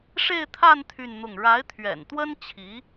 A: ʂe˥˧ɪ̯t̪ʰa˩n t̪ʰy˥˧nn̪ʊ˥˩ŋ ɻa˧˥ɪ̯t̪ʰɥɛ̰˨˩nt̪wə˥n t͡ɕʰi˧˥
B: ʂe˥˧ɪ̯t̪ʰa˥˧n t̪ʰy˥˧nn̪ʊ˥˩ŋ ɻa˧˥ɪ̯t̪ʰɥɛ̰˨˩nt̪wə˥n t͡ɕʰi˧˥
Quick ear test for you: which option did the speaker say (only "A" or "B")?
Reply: B